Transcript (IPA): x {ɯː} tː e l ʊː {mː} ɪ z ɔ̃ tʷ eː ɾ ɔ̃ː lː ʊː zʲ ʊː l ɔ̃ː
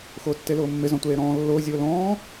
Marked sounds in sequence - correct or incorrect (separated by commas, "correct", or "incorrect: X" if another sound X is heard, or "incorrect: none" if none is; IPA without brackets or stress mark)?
incorrect: ʊː, correct